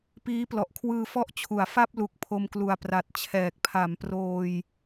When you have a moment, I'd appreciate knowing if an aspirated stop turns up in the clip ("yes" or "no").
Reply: yes